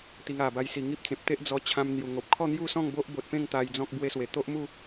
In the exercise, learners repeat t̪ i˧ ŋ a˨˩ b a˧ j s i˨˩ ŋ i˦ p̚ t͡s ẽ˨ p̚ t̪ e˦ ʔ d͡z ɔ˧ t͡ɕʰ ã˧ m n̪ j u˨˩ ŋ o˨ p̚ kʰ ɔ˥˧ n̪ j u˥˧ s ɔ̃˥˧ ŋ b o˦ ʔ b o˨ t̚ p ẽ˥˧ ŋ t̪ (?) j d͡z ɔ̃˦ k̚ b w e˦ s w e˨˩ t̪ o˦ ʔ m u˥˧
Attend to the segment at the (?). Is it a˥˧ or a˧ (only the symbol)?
a˧